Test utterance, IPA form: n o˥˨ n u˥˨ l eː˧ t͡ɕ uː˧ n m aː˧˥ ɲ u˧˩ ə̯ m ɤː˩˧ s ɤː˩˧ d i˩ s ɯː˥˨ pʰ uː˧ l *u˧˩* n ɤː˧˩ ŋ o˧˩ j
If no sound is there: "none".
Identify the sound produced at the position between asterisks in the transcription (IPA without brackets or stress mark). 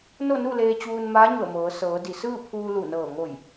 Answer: u˧˩